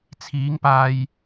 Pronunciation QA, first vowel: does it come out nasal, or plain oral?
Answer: oral